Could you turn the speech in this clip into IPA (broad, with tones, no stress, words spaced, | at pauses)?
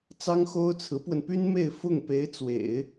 t͡sɑ˥ŋxo˥ʊ̯ t͡sʰɹ̩˧˥pwə˧npy˥n me˥˧ɪ̯fʊ˥˩ŋ pe˧˥ɪ̯ t͡swḛ˨˩˦ɪ̯